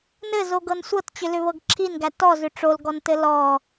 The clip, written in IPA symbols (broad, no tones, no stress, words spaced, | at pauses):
nɘzoɡɤn sʷɤtt͡ɕʏlʏβɤɡ ǁʰinɡæ tɔzʏ ʈ͡ʂolɡɔntɘ lɔ